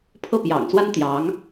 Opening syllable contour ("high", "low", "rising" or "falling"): falling